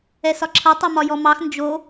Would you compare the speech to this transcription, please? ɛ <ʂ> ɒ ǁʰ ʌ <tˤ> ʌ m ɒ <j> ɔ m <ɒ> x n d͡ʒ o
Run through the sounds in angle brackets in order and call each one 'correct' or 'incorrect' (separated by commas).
incorrect, correct, correct, incorrect